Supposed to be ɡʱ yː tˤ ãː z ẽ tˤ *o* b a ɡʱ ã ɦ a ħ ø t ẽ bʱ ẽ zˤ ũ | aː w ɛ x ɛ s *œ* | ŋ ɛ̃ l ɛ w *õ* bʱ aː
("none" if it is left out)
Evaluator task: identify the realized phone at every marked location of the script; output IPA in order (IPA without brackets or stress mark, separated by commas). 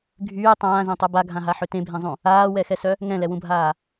u, œ, ũ